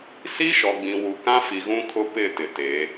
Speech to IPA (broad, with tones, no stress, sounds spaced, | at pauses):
s i˦ ʃ ɔ˨ ɡ͡b ĩ˨ w u˨ k ã˦ f i˨ ɣ ũ˦ kʰ ʊ˦ p ɪ˦˨ t ɪ˨ t e˨˦